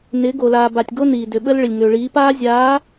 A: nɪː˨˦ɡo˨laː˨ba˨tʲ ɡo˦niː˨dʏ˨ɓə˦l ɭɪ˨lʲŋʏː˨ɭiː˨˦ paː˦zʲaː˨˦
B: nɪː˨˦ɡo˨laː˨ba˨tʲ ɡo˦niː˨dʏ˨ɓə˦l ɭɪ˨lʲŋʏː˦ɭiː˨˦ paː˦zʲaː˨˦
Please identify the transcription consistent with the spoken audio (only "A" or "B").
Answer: A